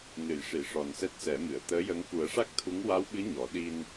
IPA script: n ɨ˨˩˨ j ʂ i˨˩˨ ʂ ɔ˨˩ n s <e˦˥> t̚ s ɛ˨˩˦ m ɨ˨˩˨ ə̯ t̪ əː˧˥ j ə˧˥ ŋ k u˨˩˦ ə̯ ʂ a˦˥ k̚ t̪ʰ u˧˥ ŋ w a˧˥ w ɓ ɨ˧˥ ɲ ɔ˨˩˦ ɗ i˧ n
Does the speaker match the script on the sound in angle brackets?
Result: no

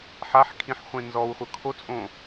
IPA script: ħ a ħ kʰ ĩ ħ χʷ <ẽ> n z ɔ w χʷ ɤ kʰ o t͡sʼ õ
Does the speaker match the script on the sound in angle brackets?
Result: yes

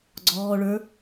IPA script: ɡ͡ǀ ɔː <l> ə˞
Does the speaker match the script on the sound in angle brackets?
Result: no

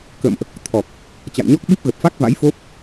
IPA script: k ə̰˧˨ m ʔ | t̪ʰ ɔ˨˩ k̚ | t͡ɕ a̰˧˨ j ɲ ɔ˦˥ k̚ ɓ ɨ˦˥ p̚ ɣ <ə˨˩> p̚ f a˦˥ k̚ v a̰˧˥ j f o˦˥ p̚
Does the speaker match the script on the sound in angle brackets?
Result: yes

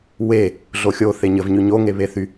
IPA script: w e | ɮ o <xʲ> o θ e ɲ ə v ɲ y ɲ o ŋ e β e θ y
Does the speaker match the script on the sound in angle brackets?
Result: yes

